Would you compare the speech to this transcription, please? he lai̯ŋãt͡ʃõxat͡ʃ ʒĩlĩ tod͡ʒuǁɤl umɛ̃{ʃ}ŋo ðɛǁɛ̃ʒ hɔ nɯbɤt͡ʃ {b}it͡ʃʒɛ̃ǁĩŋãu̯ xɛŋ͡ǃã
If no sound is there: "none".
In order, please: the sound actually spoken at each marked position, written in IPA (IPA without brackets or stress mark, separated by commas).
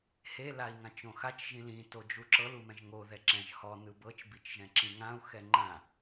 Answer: ʒ, b